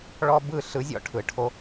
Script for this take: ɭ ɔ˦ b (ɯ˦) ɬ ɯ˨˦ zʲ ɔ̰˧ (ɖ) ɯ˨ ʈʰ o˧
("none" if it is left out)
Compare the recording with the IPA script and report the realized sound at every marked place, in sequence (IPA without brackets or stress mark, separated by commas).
ɯ˦˨, ʈʰ